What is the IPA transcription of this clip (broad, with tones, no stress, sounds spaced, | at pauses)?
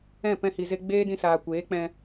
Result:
ɛ̃˦˨ p ɛ̃˧ h i˨ z e˧ ɡ͡b eː˦ d ĩ˧ s aː˨ kʷ eː˨˦ k͡p ɛ̃˧